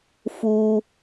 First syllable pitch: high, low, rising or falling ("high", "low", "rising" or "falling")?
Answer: high